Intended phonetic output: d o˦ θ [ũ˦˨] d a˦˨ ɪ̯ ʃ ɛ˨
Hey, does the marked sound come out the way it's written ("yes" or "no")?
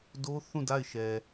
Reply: yes